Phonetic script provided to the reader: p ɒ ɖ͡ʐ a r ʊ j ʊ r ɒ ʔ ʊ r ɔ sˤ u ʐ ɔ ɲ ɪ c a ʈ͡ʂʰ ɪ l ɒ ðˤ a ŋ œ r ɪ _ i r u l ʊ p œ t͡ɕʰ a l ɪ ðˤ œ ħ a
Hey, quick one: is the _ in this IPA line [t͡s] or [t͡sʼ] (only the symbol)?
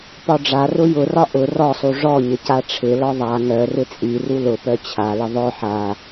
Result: t͡sʼ